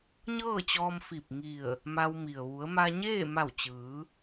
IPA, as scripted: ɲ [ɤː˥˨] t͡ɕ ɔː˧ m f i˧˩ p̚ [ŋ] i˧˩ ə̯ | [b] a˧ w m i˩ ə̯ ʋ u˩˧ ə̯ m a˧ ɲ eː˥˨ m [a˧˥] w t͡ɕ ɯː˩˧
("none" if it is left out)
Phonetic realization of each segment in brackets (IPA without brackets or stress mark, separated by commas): ɤː˥˨, ŋ, m, a˧˩